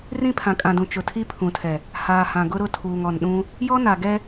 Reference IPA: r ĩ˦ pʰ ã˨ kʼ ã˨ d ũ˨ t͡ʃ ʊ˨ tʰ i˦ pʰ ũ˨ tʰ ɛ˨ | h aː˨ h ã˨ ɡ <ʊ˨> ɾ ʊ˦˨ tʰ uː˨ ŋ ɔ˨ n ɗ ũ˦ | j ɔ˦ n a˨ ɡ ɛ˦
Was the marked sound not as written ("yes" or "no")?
yes